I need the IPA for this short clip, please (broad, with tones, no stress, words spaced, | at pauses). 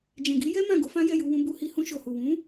d͡ʒɛ̃˨ɡi˨˦jɛ˦ mã˦˨ ɡo˨˦fã˦jɛ˦˨ ju˧wũ˧bu˧hi˧ hũ˧ʃo˨hu˨ wũ˨˦